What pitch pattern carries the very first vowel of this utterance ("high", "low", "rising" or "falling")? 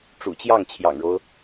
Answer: low